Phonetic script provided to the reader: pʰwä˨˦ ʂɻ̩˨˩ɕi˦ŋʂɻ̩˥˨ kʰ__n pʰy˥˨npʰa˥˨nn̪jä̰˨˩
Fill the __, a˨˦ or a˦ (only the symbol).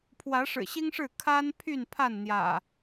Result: a˦